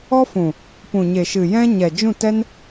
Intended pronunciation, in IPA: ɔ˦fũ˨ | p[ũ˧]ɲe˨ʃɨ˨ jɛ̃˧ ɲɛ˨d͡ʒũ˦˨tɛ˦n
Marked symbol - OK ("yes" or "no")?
no